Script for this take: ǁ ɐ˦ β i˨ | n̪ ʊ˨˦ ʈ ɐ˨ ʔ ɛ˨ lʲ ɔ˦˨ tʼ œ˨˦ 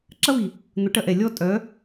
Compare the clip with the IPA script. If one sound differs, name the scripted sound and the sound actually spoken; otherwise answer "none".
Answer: none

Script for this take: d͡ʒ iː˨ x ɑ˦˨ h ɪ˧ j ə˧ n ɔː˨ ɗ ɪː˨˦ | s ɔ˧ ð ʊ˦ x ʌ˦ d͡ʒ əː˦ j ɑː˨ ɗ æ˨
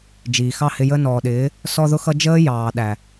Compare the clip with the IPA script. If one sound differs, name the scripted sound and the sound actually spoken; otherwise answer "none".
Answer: none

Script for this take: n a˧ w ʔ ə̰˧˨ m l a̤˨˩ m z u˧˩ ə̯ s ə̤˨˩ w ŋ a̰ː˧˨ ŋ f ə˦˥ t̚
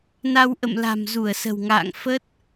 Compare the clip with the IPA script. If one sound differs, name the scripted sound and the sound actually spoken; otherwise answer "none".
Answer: none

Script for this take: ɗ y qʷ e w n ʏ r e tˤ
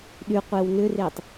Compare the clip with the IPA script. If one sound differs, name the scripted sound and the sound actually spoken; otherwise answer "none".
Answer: none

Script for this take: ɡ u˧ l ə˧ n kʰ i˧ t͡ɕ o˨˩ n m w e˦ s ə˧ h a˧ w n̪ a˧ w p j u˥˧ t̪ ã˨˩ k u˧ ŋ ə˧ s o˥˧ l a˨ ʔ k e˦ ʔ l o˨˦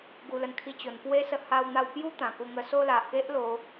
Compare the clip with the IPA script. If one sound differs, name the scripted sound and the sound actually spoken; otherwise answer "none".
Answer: m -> p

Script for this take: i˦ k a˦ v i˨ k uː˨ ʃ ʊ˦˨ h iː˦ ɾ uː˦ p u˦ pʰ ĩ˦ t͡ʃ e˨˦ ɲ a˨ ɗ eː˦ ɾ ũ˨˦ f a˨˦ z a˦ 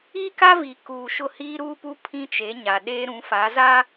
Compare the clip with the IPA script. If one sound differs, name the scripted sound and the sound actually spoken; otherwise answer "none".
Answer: none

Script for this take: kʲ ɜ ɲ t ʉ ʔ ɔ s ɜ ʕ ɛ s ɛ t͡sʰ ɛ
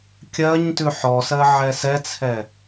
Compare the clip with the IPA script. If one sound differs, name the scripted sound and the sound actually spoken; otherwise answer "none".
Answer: ʔ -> ħ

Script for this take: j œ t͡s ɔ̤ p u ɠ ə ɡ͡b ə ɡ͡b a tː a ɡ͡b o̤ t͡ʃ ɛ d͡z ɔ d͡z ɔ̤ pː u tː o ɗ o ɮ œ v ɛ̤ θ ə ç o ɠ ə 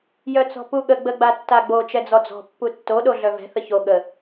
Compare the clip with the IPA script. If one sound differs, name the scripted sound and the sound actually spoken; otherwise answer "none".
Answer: o̤ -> o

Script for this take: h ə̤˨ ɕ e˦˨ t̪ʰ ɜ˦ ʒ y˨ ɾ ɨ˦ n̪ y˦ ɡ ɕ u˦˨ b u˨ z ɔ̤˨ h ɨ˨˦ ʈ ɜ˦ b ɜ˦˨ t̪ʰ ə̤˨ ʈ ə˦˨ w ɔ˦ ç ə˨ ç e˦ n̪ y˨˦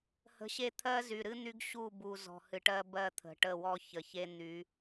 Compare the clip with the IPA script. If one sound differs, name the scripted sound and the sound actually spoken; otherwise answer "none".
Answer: ʒ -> z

